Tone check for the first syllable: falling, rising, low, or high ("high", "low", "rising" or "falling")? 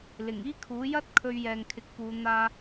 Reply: low